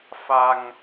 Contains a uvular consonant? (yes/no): no